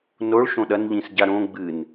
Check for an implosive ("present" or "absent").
present